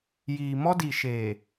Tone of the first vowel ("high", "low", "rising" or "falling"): low